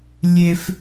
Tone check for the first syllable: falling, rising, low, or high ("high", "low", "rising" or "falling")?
high